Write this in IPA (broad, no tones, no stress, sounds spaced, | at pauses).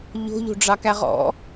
ʎ o̤ ʎ o̤ ɖ͡ʐ ɑ k æ ʁ ɔ̰